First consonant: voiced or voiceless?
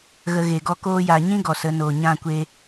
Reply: voiced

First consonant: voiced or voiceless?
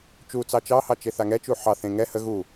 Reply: voiceless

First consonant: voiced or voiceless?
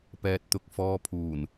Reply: voiceless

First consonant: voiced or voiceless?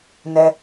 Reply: voiced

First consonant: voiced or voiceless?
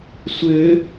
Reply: voiceless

